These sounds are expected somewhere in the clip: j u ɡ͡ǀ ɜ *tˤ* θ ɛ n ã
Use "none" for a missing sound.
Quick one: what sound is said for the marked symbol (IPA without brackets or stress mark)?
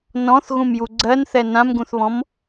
n